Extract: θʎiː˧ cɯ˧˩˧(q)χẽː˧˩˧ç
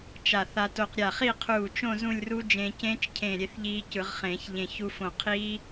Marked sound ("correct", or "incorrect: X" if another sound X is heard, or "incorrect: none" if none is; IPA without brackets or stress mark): incorrect: ʁ